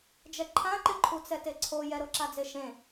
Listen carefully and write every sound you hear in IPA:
d͡ʒ ɛ ǃʰ ã ǃ ɪ ǃʰ u t͡s ɛ t e ǀʰ o j ɛ ɾ o ǁ a d͡z e ʃ ẽ

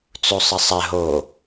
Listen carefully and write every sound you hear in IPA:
t͡s u sˤ ə sˤ ɛ ɦ o

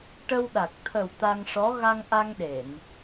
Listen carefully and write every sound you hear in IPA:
ʈ ə˧ w ɗ a˨˩ k̚ t̪ʰ ə˨˩ w t̪ a˧ ŋ ʂ ɔ˧˥ ɣ a˧ ŋ ʔ a˧ ŋ ɗ e˨˩˨ n

